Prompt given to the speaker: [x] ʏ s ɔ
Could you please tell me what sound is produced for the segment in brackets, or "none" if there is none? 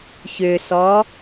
ç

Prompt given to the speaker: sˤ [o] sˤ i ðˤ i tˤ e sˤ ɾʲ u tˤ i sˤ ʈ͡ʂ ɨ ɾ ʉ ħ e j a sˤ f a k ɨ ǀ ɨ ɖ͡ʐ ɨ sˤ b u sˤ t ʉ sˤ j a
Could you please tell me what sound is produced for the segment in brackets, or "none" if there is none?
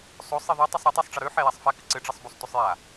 o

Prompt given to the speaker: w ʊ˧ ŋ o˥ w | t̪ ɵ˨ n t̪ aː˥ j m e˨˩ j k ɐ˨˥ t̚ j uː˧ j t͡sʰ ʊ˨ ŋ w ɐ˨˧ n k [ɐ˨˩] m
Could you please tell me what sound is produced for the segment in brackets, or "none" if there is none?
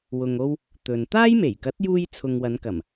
ɐ˨˩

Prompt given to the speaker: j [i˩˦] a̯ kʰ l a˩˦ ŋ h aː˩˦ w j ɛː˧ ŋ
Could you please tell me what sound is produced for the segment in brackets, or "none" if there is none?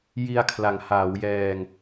i˧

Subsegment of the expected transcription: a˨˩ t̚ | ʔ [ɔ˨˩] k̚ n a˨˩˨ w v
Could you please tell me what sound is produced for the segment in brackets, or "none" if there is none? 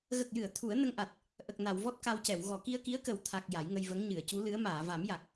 ə˨˩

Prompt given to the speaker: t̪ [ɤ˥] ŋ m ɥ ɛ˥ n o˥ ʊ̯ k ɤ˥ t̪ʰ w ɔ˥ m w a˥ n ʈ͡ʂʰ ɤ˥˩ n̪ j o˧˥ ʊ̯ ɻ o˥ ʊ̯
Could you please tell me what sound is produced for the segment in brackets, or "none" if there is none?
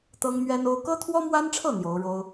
ɤ˥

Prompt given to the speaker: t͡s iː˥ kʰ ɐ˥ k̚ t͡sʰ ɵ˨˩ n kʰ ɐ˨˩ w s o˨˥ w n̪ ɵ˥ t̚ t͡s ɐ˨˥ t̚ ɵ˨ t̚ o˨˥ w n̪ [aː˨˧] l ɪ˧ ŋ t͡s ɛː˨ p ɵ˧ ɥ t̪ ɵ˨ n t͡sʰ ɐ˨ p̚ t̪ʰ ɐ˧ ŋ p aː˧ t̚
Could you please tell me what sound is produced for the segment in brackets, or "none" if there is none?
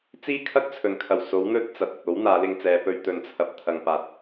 aː˨˧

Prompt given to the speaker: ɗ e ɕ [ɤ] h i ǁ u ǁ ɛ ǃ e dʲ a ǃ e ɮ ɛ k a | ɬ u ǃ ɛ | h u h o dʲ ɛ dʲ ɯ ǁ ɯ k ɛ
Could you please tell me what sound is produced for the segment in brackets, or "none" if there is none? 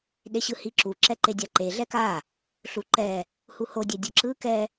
ɯ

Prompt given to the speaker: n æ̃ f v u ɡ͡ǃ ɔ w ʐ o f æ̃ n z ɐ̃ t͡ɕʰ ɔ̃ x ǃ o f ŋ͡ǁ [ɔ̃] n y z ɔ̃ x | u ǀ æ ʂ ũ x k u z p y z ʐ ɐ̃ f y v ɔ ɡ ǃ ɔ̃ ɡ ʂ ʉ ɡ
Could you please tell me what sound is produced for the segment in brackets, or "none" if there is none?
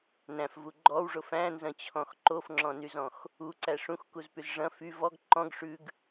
ɔ̃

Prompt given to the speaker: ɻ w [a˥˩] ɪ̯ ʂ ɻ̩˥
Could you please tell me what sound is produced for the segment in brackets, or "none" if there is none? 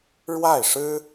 a˥˩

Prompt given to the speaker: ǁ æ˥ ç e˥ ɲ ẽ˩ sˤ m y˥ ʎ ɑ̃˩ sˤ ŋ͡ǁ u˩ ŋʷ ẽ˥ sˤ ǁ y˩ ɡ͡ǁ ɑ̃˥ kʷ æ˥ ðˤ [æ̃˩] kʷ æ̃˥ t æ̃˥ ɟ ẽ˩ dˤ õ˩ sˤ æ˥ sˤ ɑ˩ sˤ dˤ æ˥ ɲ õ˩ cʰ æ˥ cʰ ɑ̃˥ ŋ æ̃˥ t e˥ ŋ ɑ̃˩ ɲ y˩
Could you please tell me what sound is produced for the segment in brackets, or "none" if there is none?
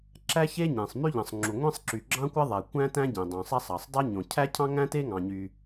æ˩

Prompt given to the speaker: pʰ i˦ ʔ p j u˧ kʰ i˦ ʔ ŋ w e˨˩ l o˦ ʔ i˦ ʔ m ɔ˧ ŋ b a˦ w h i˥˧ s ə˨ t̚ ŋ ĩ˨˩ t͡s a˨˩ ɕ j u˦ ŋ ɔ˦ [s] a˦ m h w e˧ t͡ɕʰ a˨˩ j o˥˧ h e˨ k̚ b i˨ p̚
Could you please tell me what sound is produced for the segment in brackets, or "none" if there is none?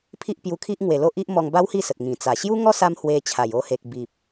s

